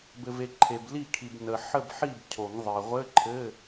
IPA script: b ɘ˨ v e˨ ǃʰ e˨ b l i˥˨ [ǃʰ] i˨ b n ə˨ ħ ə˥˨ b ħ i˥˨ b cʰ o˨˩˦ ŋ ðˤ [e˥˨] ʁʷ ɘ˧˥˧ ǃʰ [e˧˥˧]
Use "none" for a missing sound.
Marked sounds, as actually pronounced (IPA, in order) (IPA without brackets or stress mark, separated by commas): kʰ, e˨, ɘ˧˥˧